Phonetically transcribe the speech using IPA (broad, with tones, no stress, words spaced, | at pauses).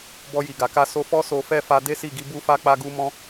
bɔ˧ji˨ɡa˨ka˧ so˧fɔ˦ so˧fɛ˦fa˧ de˦si˦˨ɡi˨˦ bu˦fa˦ k͡pa˧ɡu˧mɔ̃˧